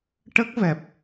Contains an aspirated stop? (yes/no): no